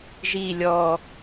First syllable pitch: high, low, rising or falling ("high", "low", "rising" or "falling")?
low